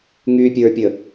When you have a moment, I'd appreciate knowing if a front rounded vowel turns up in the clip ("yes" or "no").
yes